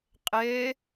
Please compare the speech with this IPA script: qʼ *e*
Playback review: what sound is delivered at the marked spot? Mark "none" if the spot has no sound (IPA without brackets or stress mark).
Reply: e